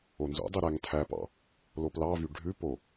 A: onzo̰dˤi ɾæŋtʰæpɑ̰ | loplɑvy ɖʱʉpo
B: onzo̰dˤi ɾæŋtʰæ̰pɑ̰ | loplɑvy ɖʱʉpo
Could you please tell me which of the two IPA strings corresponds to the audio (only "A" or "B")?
A